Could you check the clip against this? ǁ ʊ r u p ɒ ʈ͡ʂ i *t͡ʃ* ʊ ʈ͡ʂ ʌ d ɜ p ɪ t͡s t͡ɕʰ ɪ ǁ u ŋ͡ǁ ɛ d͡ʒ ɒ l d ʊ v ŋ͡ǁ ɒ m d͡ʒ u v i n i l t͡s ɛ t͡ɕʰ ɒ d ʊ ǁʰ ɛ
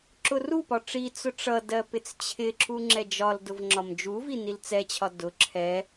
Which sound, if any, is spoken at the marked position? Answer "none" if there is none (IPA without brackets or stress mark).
t͡s